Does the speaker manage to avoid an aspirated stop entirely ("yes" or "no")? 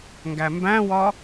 yes